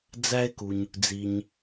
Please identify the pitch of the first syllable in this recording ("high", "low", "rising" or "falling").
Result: high